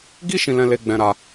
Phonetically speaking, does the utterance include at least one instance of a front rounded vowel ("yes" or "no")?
no